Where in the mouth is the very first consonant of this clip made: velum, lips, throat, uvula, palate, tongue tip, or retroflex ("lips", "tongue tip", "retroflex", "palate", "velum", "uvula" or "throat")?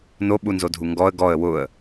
tongue tip